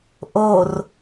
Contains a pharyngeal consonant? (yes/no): no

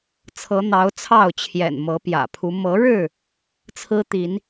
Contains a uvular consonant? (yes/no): no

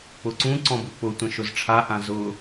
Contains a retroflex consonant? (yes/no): yes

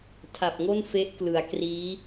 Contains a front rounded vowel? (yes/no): no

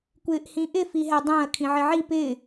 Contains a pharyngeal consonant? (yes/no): yes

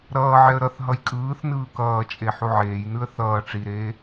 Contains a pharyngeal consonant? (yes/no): yes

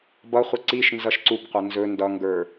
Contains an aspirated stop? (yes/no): no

